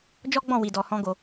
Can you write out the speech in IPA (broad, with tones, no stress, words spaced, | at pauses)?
d͡ʒɔ˦ɡ͡bɔ̃˦˨ wi˨dɔ˨hɔ̃˧ ɡo˧